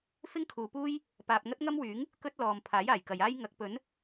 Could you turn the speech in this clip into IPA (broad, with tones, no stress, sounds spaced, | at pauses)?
f ɪ˥ ŋ kʰ uː˨ p uː˥ j | p aː˧ p̚ ŋ ɐ˥ t̚ ŋ ɐ˥ m w yː˨˥ ŋ | k ɵ˥ t̚ l ɔː˨ m pʰ aː˨˥ j aː˨˩ j k ɐ˨ j aː˥ j ŋ ɐ˨˥ k̚ p ɵ˨˥ n